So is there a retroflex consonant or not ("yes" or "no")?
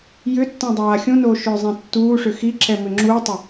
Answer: yes